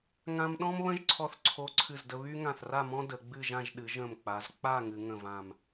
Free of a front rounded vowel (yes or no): no